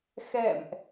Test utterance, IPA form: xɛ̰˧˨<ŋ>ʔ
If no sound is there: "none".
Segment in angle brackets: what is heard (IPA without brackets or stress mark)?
m